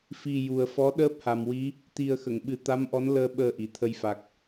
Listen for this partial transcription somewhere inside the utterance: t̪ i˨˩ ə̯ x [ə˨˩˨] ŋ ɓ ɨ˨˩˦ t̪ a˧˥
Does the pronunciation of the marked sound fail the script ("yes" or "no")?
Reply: no